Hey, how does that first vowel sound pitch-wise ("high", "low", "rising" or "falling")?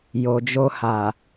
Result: low